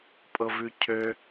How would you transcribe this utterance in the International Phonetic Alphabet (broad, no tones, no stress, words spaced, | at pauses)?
pʼɤvʉcʰø